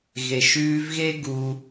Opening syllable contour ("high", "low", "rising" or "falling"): low